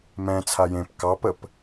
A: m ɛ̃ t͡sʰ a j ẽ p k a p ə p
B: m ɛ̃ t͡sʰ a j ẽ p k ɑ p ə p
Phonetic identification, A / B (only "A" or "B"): B